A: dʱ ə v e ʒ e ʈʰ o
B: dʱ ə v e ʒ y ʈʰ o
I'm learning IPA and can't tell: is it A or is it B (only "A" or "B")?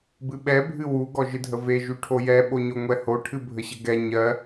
B